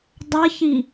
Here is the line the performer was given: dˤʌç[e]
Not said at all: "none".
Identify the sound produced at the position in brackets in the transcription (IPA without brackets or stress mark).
i